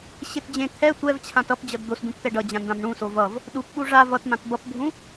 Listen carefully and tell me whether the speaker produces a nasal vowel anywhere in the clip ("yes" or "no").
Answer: yes